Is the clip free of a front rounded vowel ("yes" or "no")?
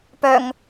no